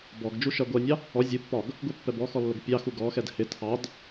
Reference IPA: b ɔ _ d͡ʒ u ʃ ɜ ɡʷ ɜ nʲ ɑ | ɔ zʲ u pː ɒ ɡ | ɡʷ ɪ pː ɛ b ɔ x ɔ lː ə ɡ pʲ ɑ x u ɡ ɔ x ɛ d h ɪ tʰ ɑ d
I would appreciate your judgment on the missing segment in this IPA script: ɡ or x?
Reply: ɡ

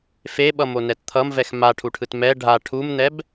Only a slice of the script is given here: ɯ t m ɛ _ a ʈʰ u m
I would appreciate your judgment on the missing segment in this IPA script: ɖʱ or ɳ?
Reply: ɖʱ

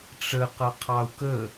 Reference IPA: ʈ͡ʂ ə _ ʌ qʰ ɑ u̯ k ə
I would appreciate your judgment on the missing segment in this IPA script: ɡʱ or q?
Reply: q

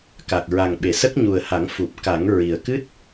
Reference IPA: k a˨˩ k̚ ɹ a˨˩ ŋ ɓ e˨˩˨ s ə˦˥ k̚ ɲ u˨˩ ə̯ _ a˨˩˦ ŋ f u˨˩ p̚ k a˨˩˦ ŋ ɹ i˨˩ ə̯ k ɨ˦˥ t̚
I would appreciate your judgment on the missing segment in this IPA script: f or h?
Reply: h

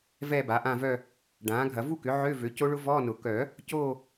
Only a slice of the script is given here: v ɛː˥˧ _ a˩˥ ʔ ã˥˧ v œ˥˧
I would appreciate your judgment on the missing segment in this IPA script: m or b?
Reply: b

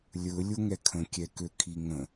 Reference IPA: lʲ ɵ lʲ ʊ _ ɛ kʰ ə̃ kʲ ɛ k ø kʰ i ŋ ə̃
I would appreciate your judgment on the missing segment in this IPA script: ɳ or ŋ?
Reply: ŋ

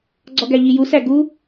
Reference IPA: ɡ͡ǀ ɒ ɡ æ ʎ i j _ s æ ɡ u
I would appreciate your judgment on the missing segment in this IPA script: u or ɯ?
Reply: u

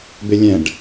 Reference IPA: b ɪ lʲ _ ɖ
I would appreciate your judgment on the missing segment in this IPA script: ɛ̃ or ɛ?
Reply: ɛ̃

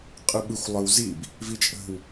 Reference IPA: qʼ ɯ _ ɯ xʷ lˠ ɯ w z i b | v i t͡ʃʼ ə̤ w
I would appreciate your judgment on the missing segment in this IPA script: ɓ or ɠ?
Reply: ɓ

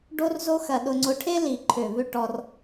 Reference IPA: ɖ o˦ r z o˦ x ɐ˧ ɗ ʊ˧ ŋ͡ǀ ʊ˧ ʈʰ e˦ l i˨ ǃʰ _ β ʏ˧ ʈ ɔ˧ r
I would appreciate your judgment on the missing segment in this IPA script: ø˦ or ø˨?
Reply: ø˨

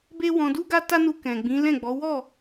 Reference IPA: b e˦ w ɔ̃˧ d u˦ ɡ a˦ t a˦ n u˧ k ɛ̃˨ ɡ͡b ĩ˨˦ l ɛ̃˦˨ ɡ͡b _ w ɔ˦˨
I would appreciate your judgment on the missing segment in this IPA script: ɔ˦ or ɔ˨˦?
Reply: ɔ˨˦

